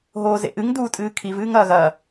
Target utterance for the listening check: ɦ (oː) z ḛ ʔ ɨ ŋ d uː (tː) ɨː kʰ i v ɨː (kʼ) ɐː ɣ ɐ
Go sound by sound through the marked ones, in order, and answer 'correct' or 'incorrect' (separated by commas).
correct, incorrect, incorrect